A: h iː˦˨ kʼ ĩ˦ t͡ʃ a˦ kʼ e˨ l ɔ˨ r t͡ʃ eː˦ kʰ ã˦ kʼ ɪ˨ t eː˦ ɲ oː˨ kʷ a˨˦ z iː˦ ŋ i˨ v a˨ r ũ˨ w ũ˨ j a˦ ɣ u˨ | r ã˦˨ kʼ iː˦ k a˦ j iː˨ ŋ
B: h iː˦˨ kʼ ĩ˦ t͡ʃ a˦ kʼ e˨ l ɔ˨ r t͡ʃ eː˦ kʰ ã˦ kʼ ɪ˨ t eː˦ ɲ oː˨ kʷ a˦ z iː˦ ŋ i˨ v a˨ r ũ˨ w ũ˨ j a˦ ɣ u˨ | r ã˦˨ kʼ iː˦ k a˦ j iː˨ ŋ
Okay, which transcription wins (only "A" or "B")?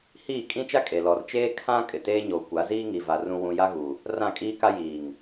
A